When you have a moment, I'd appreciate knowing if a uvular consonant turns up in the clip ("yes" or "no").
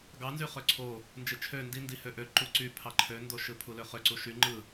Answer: yes